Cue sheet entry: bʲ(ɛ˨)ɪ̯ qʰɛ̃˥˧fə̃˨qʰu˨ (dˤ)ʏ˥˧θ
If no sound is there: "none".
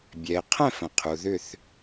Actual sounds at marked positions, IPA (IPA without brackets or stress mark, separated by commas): ɛ˨, ð